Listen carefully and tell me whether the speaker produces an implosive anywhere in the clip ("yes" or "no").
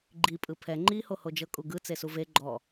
no